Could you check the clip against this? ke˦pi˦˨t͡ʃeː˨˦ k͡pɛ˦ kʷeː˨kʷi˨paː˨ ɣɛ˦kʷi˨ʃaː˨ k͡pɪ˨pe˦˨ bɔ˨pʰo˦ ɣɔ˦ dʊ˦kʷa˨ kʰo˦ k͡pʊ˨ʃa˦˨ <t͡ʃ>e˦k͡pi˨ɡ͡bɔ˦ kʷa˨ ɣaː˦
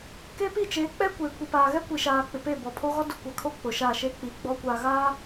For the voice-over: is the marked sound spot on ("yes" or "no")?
no